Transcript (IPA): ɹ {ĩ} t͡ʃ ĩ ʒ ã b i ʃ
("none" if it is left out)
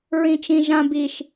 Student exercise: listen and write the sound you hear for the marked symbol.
ĩ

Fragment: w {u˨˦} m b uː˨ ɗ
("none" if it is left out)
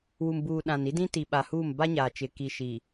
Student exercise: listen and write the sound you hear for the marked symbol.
u˨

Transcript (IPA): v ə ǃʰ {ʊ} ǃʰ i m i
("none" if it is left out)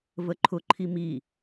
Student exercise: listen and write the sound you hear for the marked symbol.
ʊ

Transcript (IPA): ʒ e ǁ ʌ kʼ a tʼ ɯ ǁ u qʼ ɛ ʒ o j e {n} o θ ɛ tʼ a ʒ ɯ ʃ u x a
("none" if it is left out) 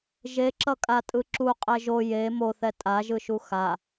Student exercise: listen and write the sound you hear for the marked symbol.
m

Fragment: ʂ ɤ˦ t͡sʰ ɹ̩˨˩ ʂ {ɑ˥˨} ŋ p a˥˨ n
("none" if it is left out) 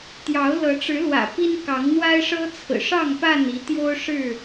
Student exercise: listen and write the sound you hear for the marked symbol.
ɑ˥˨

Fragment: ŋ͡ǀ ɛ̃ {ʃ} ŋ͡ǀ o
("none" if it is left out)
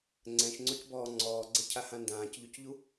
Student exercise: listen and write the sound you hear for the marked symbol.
ʃ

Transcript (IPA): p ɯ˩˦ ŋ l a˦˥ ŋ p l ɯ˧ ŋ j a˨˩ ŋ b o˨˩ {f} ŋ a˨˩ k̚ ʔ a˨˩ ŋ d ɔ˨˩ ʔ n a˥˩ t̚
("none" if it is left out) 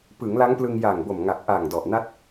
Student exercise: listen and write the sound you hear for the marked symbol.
m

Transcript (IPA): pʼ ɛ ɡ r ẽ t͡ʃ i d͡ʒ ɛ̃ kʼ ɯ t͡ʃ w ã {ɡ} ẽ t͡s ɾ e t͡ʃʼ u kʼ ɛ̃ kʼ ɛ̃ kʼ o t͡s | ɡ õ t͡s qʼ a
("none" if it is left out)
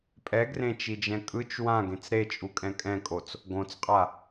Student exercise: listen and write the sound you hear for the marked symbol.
ɡ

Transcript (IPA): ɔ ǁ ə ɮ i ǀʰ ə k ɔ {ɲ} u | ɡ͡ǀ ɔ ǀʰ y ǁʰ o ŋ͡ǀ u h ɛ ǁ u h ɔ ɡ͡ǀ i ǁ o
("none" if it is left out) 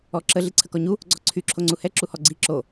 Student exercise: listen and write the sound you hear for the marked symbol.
ɲ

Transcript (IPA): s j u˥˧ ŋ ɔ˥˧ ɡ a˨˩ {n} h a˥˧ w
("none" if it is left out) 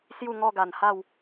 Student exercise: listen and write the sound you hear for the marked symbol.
n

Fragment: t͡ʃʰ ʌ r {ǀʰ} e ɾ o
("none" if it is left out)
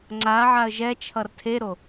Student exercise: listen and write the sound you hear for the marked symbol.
tʰ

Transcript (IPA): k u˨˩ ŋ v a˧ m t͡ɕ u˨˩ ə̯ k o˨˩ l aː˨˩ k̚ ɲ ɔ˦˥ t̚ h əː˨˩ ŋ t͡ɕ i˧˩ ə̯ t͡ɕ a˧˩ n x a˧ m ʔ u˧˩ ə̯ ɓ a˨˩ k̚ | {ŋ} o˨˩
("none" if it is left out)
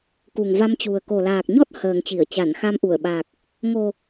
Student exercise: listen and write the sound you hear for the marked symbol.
ŋ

